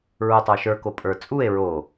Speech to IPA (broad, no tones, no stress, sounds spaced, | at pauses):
ɹ u tˤ ə˞ ʃ ə˞ k o pʼ ə˞ t͡sʼ u e̯ ɹ o